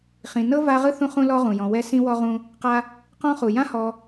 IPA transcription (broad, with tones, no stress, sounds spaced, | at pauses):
χ ĩ˨ n ɤ˥ v a˥ ʁ ɯ˥ θ ũ˦ χ ũ˦ l ɔ˥ ʁ ũ˩ j ɔ̃˨ w ɛ˦ s ĩ˥ w ɔ˥ ʁ ũ˦ | q a˦ | q ɔ̃˥ χ u˩ j ã˥ h ɔ˨